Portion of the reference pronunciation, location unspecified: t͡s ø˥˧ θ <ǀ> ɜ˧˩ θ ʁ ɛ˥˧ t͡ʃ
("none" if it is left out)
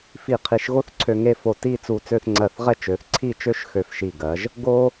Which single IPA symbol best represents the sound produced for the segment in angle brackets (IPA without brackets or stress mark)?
ŋ͡ǀ